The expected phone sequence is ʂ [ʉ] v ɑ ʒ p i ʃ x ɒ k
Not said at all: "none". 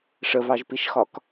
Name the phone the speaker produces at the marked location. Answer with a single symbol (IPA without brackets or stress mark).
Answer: ə